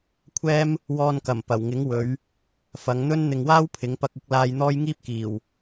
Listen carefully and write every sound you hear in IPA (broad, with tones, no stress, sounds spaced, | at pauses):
kʷʰ ɛː˥ m | w ɔː˧ n k ɐ˨˩ m p ɐ˨˩ w ŋ ɪ˨˥ ŋ w ɵ˨˧ ɥ | f ɐ˨˧ ŋ n̪ ɵ˥ n n̪ ɪ˨ ŋ w aː˥ w pʰ ɪ˨˥ ŋ p ɐ˧ k̚ ɪ˨˥ k̚ l aː˧ j n̪ ɔː˥ j ŋ iː˥ p̚ k iː˨˩ w